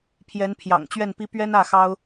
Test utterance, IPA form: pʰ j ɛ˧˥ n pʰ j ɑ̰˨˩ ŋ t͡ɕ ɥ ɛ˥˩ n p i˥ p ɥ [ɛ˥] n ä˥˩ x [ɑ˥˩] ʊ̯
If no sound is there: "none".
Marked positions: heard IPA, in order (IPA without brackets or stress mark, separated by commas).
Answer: ɛ˥, ɑ˥